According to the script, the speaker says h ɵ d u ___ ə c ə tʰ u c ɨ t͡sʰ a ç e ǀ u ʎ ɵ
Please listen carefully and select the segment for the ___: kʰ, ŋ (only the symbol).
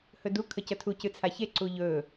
kʰ